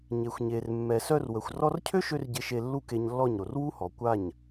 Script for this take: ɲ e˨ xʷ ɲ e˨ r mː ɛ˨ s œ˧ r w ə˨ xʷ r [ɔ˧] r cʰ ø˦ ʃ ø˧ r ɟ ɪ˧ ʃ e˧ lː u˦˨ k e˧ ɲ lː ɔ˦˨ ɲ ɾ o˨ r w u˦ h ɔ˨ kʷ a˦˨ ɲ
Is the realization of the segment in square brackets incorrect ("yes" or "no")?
no